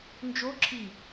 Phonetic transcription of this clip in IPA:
nd͡ʒo ǁʰi

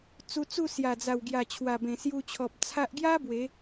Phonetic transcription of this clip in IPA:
t͡su˧t͡su˥˧ sja˨˩d͡za˨˩wɡja˨˩ t͡ɕʰwa˨˩bẽ˨˩sju˧t͡ɕʰɔ˨p̚ t͡sʰa˦ʔ ɡja˦ bwe˨˦

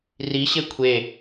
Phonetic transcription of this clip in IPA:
riɕe kʷʰe

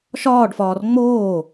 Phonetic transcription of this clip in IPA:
ʃɒːɖfɒːr ŋ͡moː

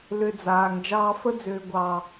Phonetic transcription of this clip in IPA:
lʏ˧ d͡zaː˨ŋ d͡ʒɑː˧fə˦d͡zʏː˨ ɡʷɑ˨

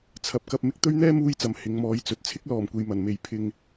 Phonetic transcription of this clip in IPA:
t͡sʰɐ˨p̚kɐ˧p̚ mɪ˧k̚t̪ɵ˥ɥ n̪ɛː˥muː˧jt͡sɐ˨˩m hɪ˨˧ŋmɔː˨˧jt͡sɵ˨t̚ t͡sʰɪ˥k̚lɔː˨˩mkʷe˨j mɐ˨˩nme˨j pʰɪ˧ŋ

